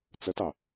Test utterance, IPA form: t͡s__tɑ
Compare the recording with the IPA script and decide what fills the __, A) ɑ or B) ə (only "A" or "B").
B